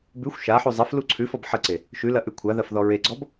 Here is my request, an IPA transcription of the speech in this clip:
b ʉ xʷ ʃ a ħ u zˤ ɐ f l u ǀʰ ʉ f ɔ b ħ ə ǀ e | ʃ ʉ l ɐ ʔ ʉ kʷʰ a ð ɐ f ð ɔ ɹ e ɡ͡ǀ ɔ b

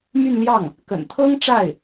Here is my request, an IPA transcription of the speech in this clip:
m y˥˧ n l j ɑ˥˩ ŋ | k ə̰˨˩ n t̪ʰ ɤ˥ ŋ ʈ͡ʂ a˥˩ ɪ̯

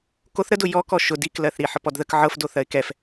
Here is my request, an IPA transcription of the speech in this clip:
k o θ ɾ ə d ʊ j ɔ k ɔ ʃ ʊ d i k l ɜ θ ɾ i ħ ɤ p ɔ d ð ə k ʕ ɤ f d o θ ɜ ɪ̯ k ɛ f

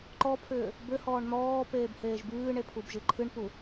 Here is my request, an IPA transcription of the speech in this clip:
ǃ ɔ pʰ ʏː | b ʏ h ɔː ɳ n̪ ɔː p eː b h eː ʒ b ɨː ɳ e pʰ u b ʒ ɨ ǃʰ ɨ ɳ p u

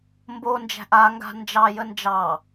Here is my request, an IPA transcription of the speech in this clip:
m b o n d͡ʒ æ̤ ʔ a ŋ ɡ a̤ n d͡ʒ ɑ j ə n d͡ʒ ɑ

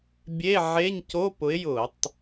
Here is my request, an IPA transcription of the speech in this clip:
bʲ e˧˥˧ ʕ e˧˥˧ ɲ c o˧˥˧ p ʊ˨˥ ɪ̯ j ʊ˧˩˧ tˤ

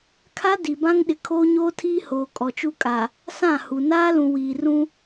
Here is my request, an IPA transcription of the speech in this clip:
kʰ a˦ d i˨ b ã˦ ŋ ɗ ɪ˨ kʰ oː˦ ɲ oː˦ tʰ iː˦ h oː˨ kʼ ɔ˨ t͡ʃ u˦ kʼ a˨ | s ã˦˨ h u˨ n aː˦ l ũ˨ w iː˨ r ũ˦

